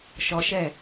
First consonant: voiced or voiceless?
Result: voiceless